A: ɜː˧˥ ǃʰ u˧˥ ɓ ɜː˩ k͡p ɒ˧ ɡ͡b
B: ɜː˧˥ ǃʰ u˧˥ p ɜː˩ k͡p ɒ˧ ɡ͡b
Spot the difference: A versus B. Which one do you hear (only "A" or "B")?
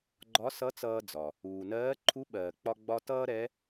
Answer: A